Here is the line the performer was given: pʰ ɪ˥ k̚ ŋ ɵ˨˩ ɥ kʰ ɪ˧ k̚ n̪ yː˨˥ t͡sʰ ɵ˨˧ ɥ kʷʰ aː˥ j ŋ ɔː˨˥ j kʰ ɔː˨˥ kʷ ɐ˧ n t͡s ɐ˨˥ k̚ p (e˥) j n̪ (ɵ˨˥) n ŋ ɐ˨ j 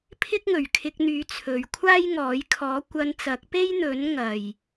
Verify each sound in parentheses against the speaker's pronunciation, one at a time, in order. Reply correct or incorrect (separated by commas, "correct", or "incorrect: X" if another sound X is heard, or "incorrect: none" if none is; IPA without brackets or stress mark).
correct, correct